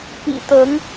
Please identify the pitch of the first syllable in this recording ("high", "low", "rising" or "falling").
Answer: low